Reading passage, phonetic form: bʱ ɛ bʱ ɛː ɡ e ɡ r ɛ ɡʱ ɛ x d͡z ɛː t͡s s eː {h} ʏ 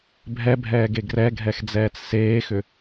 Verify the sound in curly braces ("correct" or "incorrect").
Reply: incorrect